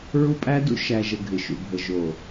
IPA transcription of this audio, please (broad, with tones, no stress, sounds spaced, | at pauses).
ɹ u˦ pʼ æ˦ d ṵ˦ ʃ æ˨ ʒ ə˨ ɡʱ ɪ˨ ʃ ṵ˨ bʱ ə˨ ʒ o˨